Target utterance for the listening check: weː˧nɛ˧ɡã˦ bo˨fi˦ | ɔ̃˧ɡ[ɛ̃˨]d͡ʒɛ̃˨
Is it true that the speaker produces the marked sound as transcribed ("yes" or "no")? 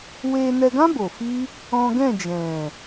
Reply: no